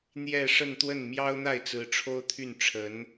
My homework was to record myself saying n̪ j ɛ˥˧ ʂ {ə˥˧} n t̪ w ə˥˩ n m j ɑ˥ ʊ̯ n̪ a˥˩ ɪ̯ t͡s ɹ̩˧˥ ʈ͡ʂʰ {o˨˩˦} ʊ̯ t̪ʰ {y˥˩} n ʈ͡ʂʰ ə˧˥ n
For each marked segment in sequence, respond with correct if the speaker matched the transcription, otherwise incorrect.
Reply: correct, incorrect: o˥, correct

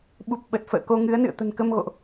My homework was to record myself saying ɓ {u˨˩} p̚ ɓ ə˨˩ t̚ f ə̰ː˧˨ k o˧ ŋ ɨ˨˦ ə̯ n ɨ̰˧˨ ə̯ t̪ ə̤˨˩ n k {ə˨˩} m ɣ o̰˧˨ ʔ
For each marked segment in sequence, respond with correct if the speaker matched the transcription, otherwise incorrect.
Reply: correct, incorrect: ə˧

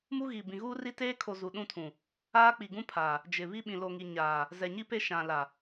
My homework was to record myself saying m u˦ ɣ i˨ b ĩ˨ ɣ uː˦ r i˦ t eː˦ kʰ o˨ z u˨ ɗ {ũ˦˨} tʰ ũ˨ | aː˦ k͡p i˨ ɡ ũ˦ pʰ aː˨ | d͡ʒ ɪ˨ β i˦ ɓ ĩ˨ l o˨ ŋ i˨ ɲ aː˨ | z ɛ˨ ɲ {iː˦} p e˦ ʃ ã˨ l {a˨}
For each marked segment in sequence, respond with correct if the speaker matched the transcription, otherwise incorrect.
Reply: correct, incorrect: i˦, correct

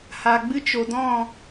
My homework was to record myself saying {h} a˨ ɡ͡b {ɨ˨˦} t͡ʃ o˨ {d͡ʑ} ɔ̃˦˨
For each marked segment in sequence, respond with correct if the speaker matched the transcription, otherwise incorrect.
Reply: correct, incorrect: ɨ˦, incorrect: d

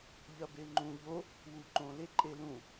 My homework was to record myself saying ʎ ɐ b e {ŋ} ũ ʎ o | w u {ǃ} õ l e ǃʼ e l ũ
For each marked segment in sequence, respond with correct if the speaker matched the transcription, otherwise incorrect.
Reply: incorrect: ŋ͡ǃ, correct

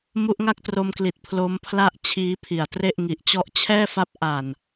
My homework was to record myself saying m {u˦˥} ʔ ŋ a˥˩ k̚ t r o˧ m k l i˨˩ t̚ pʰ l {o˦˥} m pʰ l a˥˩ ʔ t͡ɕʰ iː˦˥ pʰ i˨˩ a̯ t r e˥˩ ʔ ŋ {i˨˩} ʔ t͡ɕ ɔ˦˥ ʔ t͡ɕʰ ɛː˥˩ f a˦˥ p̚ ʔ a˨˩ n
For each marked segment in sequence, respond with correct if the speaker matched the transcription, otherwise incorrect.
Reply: correct, correct, correct

